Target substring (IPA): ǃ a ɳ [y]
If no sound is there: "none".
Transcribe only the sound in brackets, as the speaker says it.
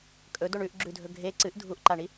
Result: i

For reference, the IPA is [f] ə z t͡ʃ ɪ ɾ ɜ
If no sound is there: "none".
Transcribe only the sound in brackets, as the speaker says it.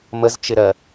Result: m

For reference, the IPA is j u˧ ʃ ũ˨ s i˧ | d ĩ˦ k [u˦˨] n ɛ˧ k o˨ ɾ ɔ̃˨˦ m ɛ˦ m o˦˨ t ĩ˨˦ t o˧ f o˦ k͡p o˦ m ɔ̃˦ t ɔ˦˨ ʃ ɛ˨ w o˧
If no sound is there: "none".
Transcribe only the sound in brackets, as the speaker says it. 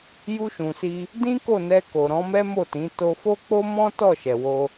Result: o˦˨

